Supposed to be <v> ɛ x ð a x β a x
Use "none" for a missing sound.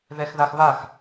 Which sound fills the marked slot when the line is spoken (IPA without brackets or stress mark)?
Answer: ð